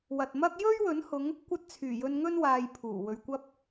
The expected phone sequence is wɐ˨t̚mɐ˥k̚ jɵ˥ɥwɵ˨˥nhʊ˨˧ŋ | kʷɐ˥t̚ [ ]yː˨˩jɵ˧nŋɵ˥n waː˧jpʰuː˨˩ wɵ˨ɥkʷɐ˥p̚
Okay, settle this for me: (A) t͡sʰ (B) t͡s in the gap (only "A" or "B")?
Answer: A